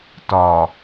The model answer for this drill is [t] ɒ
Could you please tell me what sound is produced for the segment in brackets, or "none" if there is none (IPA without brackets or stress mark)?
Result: t